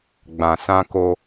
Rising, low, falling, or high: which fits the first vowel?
low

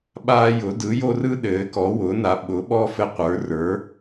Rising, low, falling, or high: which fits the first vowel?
high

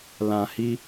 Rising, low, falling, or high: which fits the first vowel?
low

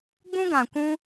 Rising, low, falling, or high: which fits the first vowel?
high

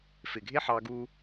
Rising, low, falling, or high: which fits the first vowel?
low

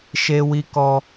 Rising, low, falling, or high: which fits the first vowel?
high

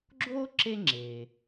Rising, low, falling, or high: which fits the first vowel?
high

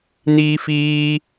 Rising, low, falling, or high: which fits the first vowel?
high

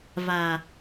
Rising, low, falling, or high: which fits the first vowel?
low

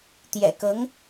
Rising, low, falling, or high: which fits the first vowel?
low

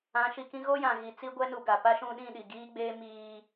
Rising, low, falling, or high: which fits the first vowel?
rising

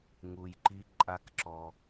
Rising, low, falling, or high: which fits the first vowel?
low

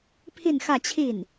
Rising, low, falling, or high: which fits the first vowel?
falling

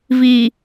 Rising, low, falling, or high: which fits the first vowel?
low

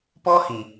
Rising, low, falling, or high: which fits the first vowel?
high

